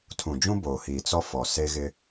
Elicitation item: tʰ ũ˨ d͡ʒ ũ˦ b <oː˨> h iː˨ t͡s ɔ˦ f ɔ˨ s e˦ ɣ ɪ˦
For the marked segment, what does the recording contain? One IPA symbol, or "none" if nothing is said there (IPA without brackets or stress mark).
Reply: oː˨